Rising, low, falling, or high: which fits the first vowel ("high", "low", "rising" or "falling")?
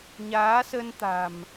rising